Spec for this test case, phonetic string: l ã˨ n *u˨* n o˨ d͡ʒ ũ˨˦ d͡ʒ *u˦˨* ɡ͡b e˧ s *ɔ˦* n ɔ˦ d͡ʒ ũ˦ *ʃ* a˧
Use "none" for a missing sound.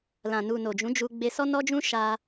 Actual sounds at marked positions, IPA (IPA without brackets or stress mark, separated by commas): u˨, u˧, ɔ˦, ʃ